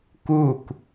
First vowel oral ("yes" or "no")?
yes